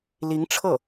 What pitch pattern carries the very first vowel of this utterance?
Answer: rising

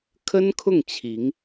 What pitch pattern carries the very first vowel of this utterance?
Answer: high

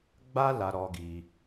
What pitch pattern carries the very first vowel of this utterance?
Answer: high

